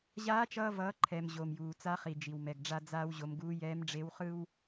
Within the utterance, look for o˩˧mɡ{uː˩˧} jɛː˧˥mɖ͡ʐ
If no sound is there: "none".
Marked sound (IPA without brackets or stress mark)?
uː˧˥